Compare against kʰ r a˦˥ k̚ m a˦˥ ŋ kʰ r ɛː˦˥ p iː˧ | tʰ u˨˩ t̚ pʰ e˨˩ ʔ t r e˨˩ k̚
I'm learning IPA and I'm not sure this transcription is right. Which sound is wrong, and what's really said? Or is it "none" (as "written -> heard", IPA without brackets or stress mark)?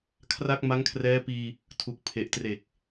t̚ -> k̚